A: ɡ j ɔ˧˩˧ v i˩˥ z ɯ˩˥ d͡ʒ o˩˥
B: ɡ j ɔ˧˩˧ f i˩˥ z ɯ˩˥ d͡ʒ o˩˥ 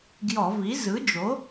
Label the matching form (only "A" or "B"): A